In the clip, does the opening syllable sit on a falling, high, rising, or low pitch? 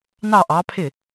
falling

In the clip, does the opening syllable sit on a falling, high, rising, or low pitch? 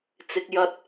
low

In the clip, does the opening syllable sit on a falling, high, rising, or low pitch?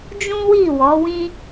high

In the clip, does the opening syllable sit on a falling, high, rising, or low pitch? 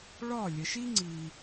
falling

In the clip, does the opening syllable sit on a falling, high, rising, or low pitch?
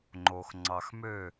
low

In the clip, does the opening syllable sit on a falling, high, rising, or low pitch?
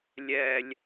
low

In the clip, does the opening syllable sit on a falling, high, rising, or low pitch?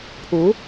rising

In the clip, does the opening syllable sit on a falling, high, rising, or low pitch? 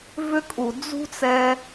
high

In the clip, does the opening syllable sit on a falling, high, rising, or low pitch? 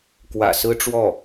low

